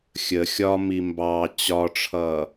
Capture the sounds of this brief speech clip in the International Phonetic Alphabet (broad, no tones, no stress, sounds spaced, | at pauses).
xʲ ə xʲ ɒ m i m b ɑ t͡ɕ ɒ ʈ͡ʂʰ ʌː